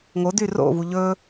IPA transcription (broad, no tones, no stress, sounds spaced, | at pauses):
ŋ o d y r o̰ v u ʎ ɵ